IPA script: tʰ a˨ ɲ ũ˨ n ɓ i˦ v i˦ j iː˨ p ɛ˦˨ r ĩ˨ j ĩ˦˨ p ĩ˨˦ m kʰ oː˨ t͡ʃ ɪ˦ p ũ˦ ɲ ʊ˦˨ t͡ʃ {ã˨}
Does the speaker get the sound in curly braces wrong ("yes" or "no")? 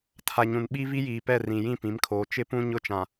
no